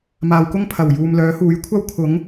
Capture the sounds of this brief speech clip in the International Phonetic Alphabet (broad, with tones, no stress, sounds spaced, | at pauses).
m aː˨ w k ʊ˥ ŋ pʰ ɐ˨˩ w j uː˨ m l œː˨˥ h uː˨˥ j kʷʰ ɐ˥ w kʰ ʊ˨˥ ŋ